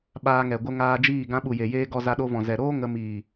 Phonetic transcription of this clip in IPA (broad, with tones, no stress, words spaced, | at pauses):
ɓaː˧ŋɛ˨ ɡʷə˧ ŋaː˧d͡ʒiː˦˨ ɡã˧ɓu˨je˨jeː˧ ɡɔ˧za˧ɗo˧vɔ̃˨ zɛ˨ɾoː˦ ŋə˧ miː˨